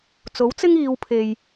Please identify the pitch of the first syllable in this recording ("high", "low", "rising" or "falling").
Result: rising